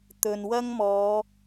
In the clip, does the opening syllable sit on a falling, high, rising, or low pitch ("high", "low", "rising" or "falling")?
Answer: low